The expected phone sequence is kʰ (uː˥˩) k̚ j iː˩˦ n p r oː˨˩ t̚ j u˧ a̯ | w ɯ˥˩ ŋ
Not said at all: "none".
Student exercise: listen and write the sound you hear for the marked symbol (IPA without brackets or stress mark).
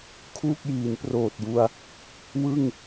uː˥˩